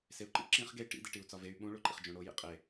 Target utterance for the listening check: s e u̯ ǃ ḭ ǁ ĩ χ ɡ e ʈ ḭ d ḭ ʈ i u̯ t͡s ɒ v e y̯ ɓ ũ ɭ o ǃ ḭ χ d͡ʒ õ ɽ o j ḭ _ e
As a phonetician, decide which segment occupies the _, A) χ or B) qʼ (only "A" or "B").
B